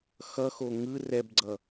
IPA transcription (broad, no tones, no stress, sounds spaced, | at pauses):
x ʌ x o ŋ ɯ r ɛ b ɡ͡ǀ ʌ